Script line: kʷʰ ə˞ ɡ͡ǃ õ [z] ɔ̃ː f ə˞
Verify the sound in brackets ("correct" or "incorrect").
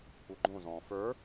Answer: correct